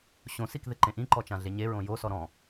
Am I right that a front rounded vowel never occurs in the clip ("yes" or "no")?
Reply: yes